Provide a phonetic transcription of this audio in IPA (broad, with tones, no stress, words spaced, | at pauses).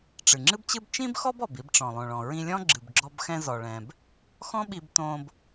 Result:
ʈ͡ʂɨ˩ŋ͡ǁɨ˥bt͡ɕɨ˥b t͡ʃĩ˥bxɔ˥b ɔ˩bi˧bʈ͡ʂɔ̃˩ lˠõ˩ɭɔ̃˩ ɹĩ˧lʲɔ̃˥ɡ͡ǁɨ˩bɡ͡ǁɔ˧b xɛ̃˧zɔ˩ɭɛ̃˩b | xɔ̃˥ɓi˧btõ˧b